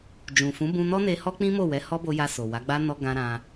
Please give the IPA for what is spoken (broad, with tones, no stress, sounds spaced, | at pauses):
d͡ʒ ũ˨ f ũ˨˦ b ũ˧ n ɔ˦ n e˧ h ɔ˦ k͡p ĩ˦ m o˦˨ w ɛ˨˦ h ɔ˦ b o˧ j a˧ s o˨ w a˨˦ ɡ͡b a˦ n ɔ˧ ɡ ã˧ ɾ ã˧